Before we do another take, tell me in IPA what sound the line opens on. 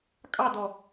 kʼ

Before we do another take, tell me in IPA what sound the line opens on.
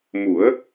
m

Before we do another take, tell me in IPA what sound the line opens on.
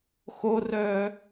x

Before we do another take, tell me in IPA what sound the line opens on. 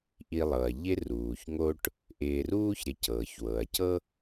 ʔ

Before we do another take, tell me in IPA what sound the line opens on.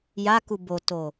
j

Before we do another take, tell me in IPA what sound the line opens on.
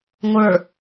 ŋʷ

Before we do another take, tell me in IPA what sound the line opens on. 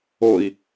o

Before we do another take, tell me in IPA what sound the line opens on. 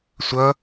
sʷ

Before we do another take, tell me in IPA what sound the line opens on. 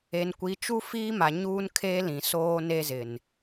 e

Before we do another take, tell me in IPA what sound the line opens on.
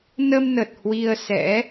n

